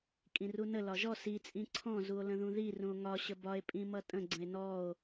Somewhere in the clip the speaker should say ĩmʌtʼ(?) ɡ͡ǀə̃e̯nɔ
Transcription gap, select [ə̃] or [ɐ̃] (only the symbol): ə̃